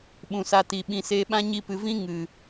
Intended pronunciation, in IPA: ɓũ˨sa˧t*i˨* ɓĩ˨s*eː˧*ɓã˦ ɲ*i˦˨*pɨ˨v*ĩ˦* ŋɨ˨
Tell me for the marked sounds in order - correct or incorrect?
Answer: correct, correct, incorrect: i˧, correct

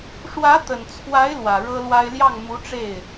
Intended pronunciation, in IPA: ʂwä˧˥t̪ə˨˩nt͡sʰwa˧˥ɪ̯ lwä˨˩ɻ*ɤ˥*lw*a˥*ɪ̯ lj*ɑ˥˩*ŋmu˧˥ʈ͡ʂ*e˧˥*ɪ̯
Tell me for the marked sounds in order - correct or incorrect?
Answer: correct, correct, correct, incorrect: e˥˩

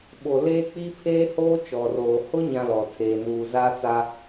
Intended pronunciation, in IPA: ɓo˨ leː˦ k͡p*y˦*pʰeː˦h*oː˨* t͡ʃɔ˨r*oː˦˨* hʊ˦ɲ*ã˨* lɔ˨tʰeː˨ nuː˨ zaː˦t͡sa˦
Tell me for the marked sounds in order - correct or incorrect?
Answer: incorrect: i˦, incorrect: oː˦, incorrect: oː˨, correct

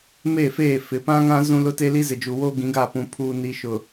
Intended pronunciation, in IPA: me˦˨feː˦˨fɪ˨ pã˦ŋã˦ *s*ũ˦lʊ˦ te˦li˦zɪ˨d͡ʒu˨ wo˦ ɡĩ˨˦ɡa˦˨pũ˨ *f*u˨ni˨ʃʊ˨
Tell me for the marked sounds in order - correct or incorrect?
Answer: incorrect: z, incorrect: pʰ

